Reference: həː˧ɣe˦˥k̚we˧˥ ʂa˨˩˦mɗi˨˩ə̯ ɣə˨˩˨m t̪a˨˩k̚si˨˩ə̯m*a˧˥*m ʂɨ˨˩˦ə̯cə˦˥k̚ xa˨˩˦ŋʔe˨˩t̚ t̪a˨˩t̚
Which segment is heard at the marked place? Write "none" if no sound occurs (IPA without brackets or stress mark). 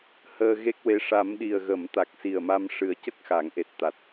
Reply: a˧